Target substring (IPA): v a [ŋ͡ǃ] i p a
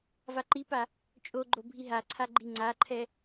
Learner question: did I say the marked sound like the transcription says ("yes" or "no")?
no